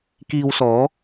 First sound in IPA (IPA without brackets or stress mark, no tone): k